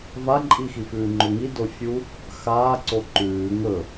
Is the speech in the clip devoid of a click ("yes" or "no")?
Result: no